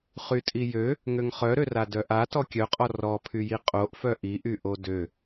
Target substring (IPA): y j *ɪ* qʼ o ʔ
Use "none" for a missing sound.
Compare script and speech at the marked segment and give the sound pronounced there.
i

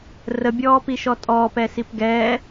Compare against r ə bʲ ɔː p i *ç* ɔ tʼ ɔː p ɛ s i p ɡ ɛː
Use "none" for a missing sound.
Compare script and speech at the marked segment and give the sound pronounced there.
ʃ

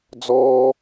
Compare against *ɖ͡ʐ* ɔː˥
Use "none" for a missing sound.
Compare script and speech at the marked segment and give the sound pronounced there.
d͡z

